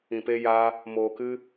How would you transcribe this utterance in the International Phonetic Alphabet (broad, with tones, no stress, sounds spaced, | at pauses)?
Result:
ĩ˧ p e˦ j aː˦ | m oː˧ k ɨ˦